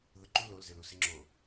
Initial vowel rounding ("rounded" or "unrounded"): rounded